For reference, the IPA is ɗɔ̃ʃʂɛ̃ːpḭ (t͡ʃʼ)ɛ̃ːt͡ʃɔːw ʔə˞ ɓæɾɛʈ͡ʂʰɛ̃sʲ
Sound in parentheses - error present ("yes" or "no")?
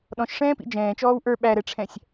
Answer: yes